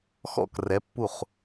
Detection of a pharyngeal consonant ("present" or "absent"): absent